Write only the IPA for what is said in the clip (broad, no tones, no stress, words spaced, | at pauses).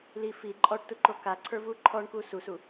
li fi ǃʼɔʈtuǃo kaǀʰə˞vu ǃʰɔɳku susu